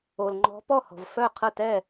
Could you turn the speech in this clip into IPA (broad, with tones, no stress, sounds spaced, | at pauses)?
o˧ l ŋ͡ǃ ɔ̤˦˥ p ɔ˥˧ h ɔ̤˧ v f œ˥˧ qʰ ə˥˧ t ɛ˥˧